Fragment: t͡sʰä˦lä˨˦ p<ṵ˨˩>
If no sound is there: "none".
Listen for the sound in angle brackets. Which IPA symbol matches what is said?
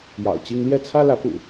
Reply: ṵ˨˩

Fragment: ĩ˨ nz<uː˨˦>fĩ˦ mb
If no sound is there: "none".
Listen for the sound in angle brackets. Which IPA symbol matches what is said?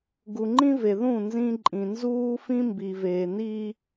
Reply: uː˦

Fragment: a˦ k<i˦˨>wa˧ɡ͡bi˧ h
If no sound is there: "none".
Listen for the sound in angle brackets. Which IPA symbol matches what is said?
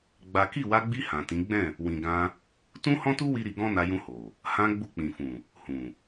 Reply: i˦˨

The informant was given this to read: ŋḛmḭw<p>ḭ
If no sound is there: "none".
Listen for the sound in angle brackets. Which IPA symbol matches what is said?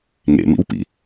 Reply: p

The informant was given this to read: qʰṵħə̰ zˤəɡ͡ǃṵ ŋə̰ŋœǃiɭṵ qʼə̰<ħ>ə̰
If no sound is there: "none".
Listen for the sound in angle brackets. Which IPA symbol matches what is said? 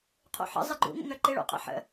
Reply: ħ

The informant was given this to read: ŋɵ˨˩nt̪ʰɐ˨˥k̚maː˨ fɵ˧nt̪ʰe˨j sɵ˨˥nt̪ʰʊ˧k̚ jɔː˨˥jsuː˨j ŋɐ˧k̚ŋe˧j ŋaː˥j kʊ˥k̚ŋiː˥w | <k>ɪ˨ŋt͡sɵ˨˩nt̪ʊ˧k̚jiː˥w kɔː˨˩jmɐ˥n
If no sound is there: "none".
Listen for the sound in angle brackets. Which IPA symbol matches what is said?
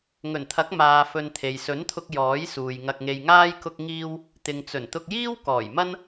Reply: t̪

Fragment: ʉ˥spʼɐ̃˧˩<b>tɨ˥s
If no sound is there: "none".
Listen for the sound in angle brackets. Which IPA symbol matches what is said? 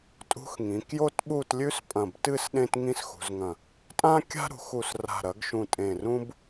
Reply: b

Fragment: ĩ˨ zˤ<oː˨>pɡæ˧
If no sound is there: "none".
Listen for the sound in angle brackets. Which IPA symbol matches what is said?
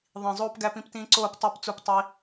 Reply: oː˧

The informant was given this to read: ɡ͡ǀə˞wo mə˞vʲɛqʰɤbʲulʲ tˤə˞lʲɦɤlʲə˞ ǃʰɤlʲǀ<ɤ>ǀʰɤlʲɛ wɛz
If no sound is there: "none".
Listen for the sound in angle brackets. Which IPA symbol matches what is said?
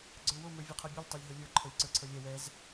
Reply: ə˞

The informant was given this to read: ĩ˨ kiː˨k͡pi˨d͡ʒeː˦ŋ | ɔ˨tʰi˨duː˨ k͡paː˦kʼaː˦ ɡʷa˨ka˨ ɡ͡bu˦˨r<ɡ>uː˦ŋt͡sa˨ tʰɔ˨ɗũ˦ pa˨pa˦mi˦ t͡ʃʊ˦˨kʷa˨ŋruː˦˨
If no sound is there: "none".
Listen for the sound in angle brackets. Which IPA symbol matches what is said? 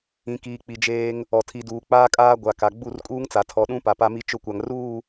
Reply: kʼ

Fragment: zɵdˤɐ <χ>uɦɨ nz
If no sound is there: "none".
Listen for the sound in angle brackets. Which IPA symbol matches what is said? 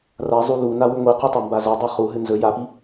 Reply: χ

